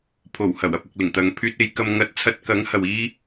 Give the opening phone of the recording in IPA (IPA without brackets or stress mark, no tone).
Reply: pʰ